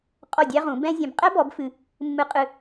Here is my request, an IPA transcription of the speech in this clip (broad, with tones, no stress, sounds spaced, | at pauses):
qʼ ɔ˥˩ dʲ æ˥ ʁ ũ˩˥ b ɛ̃˥ zʲ ɛ̃˧ b qʼ ɛ˥ b ɔ˩˥ b f ɨ˧ | mː ɨ˧ qʼ ɨ˧